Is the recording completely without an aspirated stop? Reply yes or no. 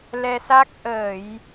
yes